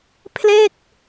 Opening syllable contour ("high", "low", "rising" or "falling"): falling